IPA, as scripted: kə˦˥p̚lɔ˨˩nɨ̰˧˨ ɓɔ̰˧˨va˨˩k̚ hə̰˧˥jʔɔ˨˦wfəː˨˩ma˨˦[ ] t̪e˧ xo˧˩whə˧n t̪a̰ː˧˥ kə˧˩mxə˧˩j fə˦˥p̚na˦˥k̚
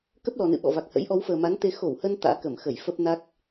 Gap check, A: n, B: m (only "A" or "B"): A